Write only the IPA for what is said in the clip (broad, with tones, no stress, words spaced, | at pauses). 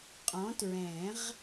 qʼɔ̃˨˥tɹɛ̃˨˩˦ʁ